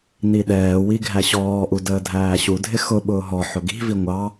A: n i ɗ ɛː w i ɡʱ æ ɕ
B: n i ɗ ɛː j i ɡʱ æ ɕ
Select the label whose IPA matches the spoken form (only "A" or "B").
A